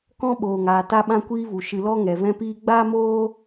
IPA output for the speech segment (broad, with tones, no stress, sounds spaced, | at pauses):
k ɔ̃˧ ɓ oː˨ ŋ aː˨ t a˧ ɓ ã˧ kʷ iː˧ v u˨ ʃ ɨ˨ l ɔ˧ ŋ ɛ˨ v ɛ̃˧ p iː˧ ɡ͡b aː˦ m oː˦